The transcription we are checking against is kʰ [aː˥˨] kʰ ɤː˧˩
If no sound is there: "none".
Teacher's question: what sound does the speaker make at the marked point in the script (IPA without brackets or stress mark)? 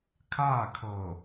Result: aː˥˨